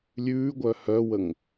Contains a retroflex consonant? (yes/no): no